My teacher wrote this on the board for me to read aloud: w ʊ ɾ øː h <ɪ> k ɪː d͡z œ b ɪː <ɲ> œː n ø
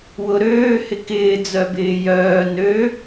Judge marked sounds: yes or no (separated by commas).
yes, no